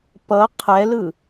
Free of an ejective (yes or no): yes